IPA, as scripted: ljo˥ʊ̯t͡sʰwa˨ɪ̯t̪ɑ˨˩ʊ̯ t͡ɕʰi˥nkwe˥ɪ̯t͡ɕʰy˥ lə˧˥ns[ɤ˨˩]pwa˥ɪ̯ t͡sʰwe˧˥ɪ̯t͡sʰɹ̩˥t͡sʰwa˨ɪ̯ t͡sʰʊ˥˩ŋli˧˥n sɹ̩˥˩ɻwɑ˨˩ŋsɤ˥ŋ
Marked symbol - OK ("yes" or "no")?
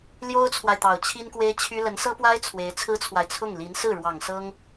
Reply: no